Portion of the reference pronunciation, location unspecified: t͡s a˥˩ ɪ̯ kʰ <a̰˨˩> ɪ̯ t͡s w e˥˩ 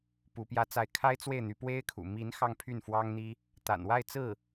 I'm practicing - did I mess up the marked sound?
yes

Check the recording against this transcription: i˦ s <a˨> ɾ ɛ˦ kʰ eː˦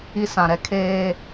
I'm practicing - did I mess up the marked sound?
yes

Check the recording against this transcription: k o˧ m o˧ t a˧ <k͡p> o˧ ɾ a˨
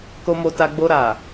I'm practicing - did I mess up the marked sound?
yes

